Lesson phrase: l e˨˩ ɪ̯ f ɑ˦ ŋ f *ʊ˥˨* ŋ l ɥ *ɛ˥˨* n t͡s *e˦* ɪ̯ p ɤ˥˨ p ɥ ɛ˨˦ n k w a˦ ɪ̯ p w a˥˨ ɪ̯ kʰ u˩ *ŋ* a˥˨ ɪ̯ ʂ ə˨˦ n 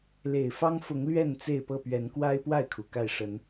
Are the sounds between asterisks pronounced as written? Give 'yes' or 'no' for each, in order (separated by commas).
no, yes, no, no